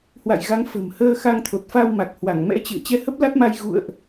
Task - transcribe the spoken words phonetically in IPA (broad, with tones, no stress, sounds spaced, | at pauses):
h w a̰˧˨ j ɣ a˨˦ ŋ f ə̤˨˩ m h əː˧ x a˧ ŋ t̪ʰ o˨˩ t̚ f a˧ w m a˨˩ k̚ h w a˧˩ ŋ m ɛ̰˧˥ t͡ɕ ɨ̰˧˨ ə̯ t͡ɕ ɛ˧ h ə˦˥ p̚ l a˦˥ t̚ m a˧ j ɣ ṵ˧˨ ə̯ ʔ